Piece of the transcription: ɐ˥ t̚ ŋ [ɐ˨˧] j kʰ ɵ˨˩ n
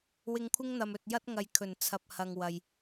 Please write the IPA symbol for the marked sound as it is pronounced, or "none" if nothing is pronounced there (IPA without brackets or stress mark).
ɐ˨˧